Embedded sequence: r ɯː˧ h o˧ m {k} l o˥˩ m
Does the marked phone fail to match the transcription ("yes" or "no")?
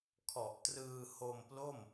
yes